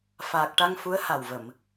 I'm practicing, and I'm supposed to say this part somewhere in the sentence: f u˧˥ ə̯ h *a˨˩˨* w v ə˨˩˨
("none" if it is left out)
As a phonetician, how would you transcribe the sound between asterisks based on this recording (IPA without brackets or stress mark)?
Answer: a˨˩